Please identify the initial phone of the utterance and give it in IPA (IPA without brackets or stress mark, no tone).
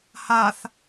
h